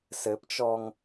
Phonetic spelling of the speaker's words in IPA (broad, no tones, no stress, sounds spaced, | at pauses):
s ɘ p t͡ʃ ɔ ŋ